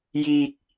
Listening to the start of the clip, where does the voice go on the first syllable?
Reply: high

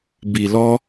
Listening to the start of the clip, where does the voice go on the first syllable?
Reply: low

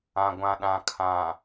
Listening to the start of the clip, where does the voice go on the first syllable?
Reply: low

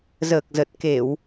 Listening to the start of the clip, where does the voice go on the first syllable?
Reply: low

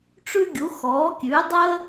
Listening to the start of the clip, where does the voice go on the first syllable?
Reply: high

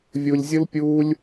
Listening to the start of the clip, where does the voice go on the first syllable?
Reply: low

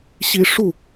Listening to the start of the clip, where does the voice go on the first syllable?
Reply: high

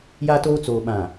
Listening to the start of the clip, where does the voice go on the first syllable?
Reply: high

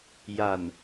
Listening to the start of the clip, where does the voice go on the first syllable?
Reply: low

